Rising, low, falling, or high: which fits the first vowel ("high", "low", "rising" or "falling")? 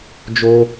high